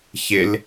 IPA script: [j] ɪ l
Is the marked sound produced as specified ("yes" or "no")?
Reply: no